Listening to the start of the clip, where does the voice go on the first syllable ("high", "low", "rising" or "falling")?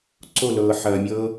falling